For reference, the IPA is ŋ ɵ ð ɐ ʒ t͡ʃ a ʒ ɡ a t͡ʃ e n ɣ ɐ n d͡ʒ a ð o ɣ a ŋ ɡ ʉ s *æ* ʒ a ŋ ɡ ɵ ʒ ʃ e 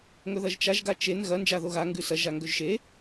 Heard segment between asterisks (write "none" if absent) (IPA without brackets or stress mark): ɐ